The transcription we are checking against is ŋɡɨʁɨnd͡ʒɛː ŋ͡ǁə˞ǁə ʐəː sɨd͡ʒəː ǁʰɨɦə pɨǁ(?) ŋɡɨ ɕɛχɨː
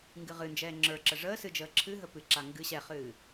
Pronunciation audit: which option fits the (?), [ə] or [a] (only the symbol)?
a